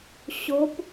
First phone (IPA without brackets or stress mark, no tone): ɕ